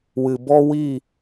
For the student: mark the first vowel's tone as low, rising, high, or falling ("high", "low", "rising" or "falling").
low